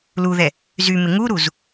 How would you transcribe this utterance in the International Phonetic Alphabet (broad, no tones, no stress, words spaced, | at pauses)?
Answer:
luðɛ | zymɪ ŋuɾuz